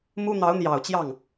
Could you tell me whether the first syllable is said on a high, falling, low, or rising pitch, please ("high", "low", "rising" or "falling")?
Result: high